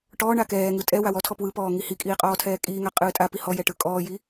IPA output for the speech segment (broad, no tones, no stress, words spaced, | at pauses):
ʈɔː ɳakɛːŋɯ tʼɛ wawɔtʰɔ pwɯpɔː ŋihikʼiː qʼɔːtʰɛːkʼiːŋa qʼɯːtʼapi hɔjɛ ʈɯkʼɔːji